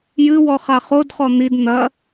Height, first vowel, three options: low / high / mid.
high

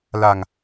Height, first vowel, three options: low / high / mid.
low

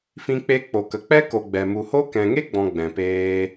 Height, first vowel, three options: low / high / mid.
high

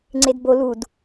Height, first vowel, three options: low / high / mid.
mid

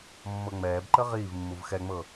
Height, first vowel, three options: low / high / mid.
mid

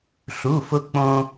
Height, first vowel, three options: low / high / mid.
high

